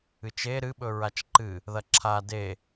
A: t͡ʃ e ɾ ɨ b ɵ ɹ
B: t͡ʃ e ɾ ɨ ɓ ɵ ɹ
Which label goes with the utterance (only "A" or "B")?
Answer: B